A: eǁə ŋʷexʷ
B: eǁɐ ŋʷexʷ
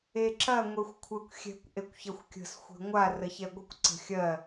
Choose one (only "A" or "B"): B